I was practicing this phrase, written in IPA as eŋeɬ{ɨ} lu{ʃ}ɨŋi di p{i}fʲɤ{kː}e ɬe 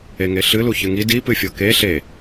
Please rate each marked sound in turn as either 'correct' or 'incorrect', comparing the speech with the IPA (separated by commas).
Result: correct, incorrect, incorrect, incorrect